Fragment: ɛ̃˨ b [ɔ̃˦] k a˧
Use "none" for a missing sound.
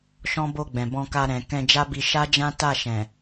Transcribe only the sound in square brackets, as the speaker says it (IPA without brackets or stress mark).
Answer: ɔ̃˧